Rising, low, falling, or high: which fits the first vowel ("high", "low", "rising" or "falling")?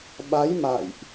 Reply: rising